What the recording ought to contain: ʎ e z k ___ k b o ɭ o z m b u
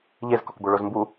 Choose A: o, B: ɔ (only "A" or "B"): B